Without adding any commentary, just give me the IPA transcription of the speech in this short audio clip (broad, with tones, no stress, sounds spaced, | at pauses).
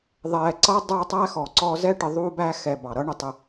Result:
ðˤ ɛː˨ ǀ ʌ˥ dˤ ə˞˦ tˤ æ˥ x ɔ˩ ǀ ɔ˦ z ɛ˥ ʈ ɪ˨ ðˤ uː˦ b æ˦ x ɛ˨ b ɑ˩ ɾ ʌ˦ ɳ ə˨ tˤ ə˨